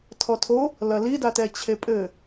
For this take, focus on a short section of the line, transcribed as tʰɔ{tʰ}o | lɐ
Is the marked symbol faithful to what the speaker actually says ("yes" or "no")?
yes